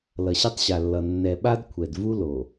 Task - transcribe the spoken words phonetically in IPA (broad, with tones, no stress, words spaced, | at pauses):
lʌ˨ɕe˦tˤɕa˨lːʌ˨ nːɛ˨ɓa˦d kʷʰɛ˨d vu˦ lo˨